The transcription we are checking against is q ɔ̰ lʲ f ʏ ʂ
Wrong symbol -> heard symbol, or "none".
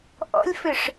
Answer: q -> ʔ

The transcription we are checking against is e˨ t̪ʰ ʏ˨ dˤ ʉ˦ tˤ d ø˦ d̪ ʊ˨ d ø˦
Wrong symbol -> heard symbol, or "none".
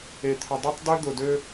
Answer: ʉ˦ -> ø˦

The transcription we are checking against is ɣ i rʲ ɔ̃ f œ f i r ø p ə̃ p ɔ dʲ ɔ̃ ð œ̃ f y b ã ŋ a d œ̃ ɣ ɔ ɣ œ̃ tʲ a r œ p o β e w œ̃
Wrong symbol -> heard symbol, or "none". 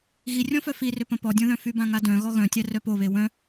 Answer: none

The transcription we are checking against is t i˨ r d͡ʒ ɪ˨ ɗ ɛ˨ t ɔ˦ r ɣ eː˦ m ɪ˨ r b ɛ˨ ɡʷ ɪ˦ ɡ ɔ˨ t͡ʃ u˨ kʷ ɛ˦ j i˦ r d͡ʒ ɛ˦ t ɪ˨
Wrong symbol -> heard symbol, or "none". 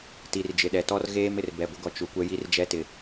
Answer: none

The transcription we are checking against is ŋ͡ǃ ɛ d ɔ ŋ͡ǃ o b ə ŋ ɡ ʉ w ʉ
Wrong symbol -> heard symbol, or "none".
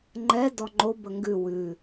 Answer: none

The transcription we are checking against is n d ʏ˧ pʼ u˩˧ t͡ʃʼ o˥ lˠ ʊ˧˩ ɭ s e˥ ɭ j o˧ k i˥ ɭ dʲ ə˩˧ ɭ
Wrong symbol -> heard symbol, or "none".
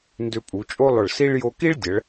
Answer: e˥ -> i˥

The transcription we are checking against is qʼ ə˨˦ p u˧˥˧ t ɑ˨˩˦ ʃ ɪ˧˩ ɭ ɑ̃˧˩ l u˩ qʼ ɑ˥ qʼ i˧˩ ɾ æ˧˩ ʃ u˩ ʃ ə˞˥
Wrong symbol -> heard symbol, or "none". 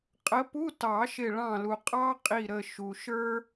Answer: æ˧˩ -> ə˧˩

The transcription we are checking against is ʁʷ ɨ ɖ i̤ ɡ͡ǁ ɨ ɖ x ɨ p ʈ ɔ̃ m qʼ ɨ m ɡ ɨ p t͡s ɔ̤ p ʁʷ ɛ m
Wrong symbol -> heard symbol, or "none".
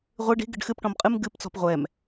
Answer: ɡ͡ǁ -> ɡ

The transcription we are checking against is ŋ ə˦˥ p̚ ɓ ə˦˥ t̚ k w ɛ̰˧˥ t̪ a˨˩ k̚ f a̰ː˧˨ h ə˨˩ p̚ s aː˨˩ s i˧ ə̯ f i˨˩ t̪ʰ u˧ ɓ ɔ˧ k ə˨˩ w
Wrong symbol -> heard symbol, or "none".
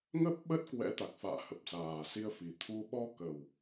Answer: none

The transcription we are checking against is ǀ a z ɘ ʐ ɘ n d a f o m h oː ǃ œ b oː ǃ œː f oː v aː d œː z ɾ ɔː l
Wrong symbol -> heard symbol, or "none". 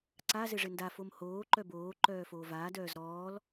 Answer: none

